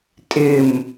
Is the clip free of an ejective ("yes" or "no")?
no